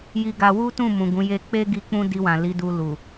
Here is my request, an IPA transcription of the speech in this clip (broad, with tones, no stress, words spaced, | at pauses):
ji˧ɡa˧ wu˦tũ˦˨ mũ˨ɡũ˨˦ je˧k͡pe˦ɡi˧ k͡pũ˦di˧wã˨ li˨˦du˧ lu˨